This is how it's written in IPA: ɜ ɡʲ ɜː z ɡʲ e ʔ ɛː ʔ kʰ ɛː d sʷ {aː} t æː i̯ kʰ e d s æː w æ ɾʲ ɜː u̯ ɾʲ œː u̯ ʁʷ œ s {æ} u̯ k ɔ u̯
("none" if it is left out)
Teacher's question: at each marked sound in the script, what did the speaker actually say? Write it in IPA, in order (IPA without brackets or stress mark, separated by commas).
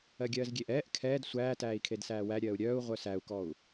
æː, æ